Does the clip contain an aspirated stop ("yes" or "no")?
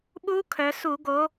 yes